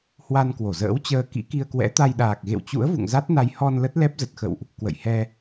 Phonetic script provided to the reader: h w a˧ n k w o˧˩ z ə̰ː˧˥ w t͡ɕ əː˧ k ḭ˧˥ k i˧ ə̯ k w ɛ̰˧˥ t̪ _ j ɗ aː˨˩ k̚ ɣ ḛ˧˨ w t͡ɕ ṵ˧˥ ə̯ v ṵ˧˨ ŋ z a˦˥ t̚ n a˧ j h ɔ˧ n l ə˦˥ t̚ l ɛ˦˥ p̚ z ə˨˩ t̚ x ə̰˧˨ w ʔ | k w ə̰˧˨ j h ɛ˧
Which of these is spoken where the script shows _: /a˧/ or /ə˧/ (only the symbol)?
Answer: a˧